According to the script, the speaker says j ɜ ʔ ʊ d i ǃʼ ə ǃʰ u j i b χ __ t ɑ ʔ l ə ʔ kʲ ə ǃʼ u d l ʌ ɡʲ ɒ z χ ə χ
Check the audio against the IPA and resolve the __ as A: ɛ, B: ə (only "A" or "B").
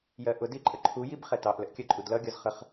A